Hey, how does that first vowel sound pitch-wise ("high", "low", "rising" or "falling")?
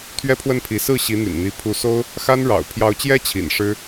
high